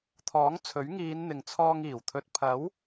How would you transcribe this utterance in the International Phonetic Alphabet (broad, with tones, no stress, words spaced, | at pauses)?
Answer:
t̪ʰɔː˨˥ŋt͡sʰɵ˨˥ɥŋiː˨˧n n̪ɪ˨ŋt͡sʰɔː˧ŋ iː˨˩wt̪ʰɵ˧t̚ pʰɐ˨˥w